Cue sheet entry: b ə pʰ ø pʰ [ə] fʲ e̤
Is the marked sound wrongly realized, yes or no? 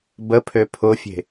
yes